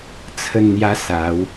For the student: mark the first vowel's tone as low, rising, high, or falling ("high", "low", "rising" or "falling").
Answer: falling